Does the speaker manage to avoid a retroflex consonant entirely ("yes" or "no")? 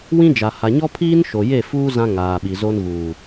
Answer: yes